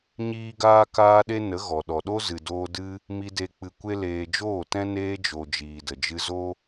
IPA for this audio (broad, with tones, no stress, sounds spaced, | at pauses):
ɲ iː˦ ɡ aː˦ k aː˦ ɗ e˦ n ə˨˦ ɣ ɔ˨ ɗ ɔ˨ ɗ o˦ z ɨ˨ d oː˧ d ɨ˦ | m i˧ d e˧ k͡p ɨ˧ kʷ e˦ l eː˧ d͡ʒ oː˦˨ t ɛ̃˦ n eː˧ d͡ʒ o˨ d͡ʒ iː˨ d ə˨ d͡ʒ ɨ˧ z o˦